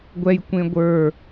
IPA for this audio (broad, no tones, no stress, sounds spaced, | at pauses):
ɡʷ ɛ j kʷ ẽ ɡʷ ə˞